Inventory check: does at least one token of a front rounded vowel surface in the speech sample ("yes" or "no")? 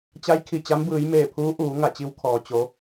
no